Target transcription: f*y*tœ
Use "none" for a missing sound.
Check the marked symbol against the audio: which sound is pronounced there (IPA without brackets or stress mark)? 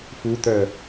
u